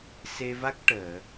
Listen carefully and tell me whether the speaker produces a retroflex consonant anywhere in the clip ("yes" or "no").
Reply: yes